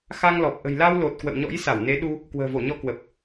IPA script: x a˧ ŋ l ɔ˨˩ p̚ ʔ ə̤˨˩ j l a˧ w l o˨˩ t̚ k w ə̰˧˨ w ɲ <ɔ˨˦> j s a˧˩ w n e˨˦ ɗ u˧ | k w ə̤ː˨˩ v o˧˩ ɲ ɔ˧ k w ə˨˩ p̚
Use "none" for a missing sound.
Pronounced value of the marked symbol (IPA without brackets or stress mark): ɔ̰˧˥